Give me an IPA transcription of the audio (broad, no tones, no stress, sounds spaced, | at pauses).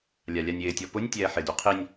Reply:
lʲ a lʲ a nʲ ɪː tʲ ɔ p ʊ nʲ tʲ ɛː ħ ɪ d u qʰ i nʲ